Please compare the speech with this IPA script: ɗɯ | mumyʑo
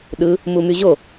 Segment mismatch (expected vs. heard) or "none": none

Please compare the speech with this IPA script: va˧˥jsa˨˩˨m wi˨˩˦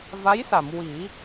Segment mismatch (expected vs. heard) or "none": none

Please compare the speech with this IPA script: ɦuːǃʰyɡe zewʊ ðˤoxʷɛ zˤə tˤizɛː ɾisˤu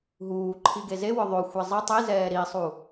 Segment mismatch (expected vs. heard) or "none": y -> i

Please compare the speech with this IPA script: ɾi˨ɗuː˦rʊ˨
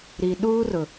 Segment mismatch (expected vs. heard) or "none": none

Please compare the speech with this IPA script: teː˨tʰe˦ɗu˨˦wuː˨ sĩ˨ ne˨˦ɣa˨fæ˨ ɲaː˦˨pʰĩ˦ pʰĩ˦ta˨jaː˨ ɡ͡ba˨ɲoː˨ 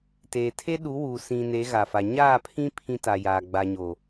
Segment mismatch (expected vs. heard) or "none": æ˨ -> a˨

